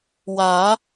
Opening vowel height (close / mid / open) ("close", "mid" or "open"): open